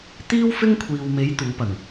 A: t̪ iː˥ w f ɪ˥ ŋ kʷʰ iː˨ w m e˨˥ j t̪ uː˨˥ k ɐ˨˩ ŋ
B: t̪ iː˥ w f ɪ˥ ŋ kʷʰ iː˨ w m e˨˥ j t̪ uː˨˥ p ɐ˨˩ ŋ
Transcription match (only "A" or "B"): B